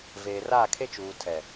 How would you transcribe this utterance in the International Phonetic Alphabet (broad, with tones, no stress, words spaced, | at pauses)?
veː˨r aː˦˨kʰe˦t͡ʃuː˨ tʰɛ˨